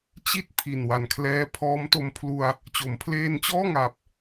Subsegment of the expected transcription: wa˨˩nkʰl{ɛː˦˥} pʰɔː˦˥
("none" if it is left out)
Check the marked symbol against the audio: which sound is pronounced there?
ɛː˦˥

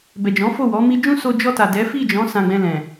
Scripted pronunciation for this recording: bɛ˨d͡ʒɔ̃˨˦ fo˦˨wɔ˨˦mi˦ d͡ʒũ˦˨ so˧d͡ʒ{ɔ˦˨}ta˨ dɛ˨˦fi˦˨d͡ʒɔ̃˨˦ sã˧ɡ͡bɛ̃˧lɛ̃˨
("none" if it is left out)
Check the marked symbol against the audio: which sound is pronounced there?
ɔ˧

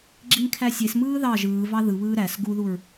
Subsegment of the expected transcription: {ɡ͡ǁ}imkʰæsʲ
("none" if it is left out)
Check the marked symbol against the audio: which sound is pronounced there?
ɡ͡ǁ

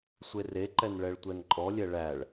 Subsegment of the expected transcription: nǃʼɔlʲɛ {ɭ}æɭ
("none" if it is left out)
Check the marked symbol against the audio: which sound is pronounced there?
ɭ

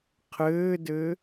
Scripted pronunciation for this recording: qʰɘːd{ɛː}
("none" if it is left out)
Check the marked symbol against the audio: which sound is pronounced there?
ɘː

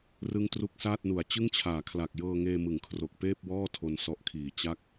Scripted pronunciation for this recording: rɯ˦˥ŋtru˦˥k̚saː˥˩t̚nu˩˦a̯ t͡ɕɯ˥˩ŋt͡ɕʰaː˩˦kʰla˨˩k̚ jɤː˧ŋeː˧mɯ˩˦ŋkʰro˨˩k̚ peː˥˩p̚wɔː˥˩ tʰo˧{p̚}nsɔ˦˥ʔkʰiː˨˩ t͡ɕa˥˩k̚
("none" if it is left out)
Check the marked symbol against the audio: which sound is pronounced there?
none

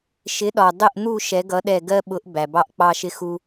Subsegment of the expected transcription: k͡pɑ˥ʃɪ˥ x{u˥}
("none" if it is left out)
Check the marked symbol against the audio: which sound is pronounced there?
u˥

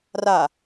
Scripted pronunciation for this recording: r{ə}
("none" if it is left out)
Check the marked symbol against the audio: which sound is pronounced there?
a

